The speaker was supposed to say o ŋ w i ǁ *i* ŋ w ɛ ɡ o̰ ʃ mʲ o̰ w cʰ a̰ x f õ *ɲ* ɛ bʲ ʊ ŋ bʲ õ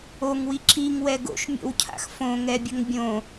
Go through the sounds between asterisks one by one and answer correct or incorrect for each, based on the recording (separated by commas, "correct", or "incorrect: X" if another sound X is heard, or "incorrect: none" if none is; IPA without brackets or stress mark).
correct, incorrect: ŋ